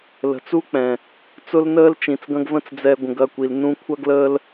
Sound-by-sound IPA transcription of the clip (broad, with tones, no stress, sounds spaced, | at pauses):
l ə̤˨ t͡s u˦ k͡p ɛ̃˨ | t͡s ʊ˦ l n əː˦ l t͡ʃ ĩ˨ t͡s ɡ ɐ̃˦ ɡ v ə̃˦ t͡s d͡z ɛ˧ ɡʷ ə̃˨ ɡ ɐ˦˨ kʷ i˨ l n ũ˧ kʷʰ ɐ˦ ɡ l əː˦ l